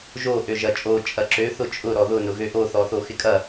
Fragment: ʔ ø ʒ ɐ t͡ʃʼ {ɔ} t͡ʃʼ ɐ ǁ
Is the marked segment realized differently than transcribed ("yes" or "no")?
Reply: yes